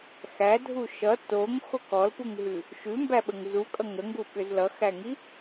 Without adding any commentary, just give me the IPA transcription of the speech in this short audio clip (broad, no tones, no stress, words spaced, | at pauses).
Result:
xædʱu ʃʌ toŋxok ɔlpuŋɦʉ | ʃʉmbæɓəŋ zukʼʌ ŋəŋɡuɓʏz lʌxæŋi